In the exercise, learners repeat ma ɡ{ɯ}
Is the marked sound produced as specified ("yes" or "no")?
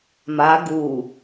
no